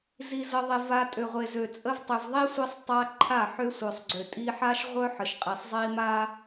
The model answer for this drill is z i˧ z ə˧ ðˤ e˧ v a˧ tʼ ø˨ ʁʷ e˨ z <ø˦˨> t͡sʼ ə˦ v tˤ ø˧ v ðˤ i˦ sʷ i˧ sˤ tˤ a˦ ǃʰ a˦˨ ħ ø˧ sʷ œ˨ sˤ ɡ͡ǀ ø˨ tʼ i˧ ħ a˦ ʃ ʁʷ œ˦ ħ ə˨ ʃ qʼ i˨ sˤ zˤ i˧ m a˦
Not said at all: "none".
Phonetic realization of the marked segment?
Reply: ø˨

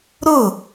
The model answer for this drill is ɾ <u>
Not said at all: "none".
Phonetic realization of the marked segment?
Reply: ʊ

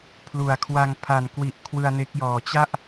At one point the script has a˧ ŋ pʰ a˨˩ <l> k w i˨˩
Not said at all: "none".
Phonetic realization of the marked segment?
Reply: n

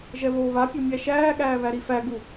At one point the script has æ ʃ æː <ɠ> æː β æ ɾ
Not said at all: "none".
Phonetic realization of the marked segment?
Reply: ɠ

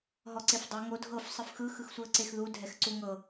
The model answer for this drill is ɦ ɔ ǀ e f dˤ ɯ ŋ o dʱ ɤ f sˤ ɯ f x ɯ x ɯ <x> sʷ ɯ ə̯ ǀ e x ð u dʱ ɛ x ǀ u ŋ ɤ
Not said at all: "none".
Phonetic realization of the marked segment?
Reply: x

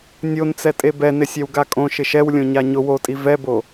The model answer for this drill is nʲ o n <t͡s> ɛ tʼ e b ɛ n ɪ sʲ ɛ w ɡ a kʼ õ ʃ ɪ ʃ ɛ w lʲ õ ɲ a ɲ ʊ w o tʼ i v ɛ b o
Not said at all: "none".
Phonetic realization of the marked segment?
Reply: t͡s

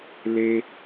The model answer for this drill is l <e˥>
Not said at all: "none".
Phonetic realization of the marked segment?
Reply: e˧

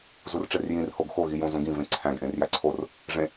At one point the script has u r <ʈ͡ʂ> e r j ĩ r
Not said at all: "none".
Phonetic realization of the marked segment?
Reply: ʈ͡ʂ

